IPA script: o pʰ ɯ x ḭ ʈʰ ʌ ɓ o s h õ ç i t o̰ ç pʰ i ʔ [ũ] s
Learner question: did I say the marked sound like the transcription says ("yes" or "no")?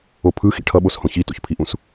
yes